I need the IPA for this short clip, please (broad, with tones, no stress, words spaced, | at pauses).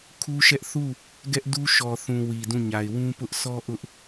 kʰu˦ʃɛ˦ʔ θu˦˨ | ɡɛ˦ʔdu˦ ʃɔ˨θũ˨ wi˨dũ˦˨ɲa˨ɪ̯ wũ˦pʊ˦ʔ sɔ˦ ʔʊ˦ʔ